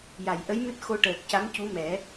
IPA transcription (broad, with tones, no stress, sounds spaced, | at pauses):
j a˨˩˨ j ʔ ə˧˥ j m ɨ˦˥ t̚ x o˧ ʈ əː˨˩ k̚ c a˧˥ m c u˧˥ m ɛ˨˩˦